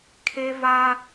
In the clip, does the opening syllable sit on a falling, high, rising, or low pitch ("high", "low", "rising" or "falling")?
high